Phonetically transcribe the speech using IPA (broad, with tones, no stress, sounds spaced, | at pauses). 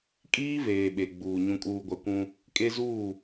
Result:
kʼ iː˦ v eː˨ ɓ e˨ ɡ͡b uː˨ ɲ ũ˨ kʼ uː˨ ɡʷ a˨ kʷ ũ˦ | kʼ e˦ z uː˦˨